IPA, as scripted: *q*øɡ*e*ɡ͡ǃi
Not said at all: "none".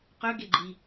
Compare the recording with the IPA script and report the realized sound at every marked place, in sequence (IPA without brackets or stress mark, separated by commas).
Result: q, e